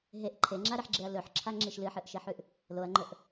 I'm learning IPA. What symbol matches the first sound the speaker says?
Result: ɦ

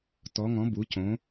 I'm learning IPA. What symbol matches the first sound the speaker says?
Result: t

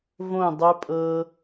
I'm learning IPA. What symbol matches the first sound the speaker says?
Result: v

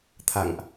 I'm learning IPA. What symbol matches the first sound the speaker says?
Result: t̪ʰ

